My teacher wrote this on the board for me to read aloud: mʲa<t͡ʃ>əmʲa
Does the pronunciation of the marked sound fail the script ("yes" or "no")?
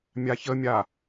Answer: yes